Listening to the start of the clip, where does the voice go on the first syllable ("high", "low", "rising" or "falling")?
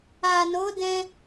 low